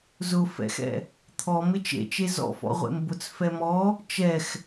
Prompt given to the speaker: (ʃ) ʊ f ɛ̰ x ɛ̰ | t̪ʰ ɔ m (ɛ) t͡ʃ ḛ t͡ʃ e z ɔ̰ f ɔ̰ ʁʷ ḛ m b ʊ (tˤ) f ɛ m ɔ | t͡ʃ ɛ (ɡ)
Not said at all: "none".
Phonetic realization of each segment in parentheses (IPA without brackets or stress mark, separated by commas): z, ɪ, t͡s, x